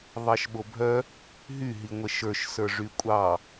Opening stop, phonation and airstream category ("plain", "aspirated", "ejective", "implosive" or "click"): implosive